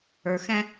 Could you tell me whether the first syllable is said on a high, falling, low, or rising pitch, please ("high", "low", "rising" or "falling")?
low